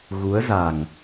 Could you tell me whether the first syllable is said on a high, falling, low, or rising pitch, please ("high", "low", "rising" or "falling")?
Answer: rising